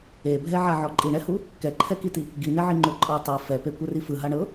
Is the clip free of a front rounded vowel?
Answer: yes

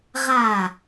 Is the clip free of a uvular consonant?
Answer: no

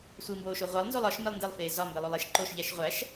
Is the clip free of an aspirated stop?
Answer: yes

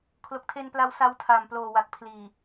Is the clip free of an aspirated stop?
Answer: no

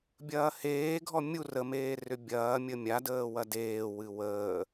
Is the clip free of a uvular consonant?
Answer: yes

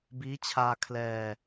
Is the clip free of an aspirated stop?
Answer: no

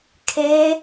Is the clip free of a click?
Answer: yes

